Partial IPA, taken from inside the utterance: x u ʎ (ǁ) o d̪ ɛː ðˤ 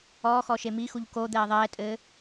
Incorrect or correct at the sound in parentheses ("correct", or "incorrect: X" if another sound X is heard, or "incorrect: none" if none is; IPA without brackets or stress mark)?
incorrect: k